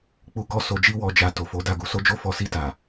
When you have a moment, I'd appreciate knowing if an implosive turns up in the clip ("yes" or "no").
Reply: no